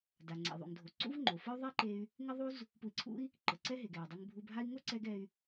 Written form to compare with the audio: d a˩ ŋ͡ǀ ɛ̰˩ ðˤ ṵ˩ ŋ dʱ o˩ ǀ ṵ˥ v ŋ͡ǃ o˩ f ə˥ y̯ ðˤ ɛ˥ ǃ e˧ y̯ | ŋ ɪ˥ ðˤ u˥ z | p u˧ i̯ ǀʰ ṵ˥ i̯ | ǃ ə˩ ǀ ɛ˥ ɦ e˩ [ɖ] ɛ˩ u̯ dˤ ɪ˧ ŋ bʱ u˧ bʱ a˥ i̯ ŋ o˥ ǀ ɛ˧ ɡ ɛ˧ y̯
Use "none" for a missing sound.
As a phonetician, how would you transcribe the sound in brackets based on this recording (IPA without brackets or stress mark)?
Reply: ɡ